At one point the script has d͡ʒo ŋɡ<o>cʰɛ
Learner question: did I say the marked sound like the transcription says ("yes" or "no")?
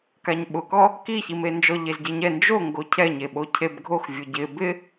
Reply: yes